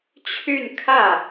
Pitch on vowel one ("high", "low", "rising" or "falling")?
falling